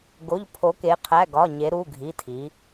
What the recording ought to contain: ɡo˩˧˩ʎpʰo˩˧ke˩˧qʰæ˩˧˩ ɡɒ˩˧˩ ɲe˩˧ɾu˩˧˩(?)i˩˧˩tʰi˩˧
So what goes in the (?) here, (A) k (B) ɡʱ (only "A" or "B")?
B